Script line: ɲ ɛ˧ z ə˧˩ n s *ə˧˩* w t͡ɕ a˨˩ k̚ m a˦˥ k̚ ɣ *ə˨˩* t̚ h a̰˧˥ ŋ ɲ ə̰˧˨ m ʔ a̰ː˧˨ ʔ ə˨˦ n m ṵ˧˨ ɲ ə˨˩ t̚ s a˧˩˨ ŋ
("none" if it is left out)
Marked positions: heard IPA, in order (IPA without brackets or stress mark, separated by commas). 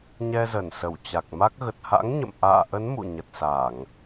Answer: ə˧˩, ə˨˩